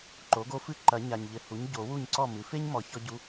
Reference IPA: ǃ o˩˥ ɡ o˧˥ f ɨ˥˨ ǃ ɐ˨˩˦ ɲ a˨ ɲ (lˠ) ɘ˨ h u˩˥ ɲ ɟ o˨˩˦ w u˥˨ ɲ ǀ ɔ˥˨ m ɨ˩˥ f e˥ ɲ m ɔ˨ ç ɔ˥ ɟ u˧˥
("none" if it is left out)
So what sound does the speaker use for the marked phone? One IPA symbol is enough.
ʎ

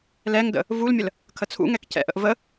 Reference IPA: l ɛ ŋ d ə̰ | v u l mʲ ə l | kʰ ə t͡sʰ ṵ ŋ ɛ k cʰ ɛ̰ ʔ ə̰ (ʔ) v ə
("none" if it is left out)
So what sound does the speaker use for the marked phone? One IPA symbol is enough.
ʔ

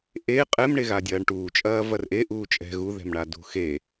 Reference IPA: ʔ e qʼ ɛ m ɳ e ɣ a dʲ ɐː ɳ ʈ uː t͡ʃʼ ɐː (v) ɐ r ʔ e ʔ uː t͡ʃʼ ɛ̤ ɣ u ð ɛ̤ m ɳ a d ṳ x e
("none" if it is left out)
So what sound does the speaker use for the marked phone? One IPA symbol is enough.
v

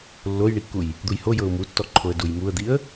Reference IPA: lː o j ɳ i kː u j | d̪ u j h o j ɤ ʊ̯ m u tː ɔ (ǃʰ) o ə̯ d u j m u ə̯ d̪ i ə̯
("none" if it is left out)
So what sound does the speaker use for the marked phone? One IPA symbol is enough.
ǃʰ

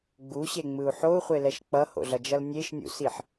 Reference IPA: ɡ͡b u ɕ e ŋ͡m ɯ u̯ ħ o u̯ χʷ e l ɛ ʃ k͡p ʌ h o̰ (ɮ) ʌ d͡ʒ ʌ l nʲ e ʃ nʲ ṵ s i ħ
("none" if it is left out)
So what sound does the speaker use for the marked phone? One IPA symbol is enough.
ɮ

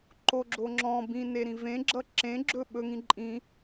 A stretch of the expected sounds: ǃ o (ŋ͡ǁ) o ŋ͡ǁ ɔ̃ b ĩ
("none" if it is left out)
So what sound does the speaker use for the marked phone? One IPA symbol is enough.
ɡ͡ǁ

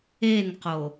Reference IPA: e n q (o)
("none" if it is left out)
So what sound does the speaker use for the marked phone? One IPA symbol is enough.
o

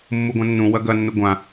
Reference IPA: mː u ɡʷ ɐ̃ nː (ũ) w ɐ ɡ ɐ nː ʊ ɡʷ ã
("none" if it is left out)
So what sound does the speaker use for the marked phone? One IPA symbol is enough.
ũ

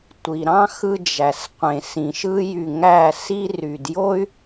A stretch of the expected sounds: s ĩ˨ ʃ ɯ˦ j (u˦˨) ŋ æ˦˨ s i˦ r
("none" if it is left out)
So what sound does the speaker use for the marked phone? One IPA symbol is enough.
y˦˨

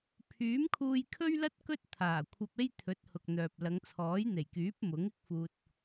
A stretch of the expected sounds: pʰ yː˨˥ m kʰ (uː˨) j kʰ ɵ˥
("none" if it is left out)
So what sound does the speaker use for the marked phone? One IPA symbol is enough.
uː˧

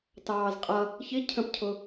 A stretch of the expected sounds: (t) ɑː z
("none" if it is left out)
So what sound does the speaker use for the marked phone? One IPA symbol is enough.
t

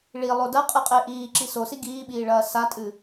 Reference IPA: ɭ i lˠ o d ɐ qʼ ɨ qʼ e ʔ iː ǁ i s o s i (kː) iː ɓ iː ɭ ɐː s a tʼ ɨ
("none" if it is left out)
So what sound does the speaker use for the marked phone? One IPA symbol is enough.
ɡ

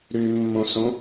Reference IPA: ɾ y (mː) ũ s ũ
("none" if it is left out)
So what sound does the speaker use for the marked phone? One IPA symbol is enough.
mː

